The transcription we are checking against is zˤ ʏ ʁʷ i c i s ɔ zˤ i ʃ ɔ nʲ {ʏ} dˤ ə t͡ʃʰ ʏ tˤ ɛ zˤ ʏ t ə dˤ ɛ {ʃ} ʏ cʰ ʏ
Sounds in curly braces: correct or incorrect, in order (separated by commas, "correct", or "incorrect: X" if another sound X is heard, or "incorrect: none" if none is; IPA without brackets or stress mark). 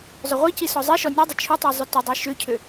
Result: incorrect: ɛ, correct